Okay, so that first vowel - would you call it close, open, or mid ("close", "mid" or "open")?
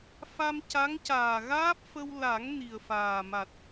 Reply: open